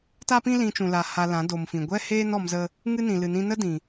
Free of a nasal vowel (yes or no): no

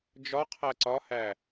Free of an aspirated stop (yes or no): no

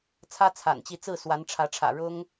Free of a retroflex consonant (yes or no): no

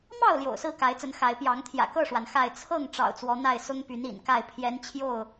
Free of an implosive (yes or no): yes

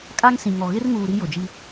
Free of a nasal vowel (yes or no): no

